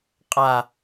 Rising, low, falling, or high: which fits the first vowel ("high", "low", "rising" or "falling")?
low